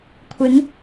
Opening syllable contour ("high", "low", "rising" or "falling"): rising